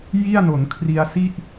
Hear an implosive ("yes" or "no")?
no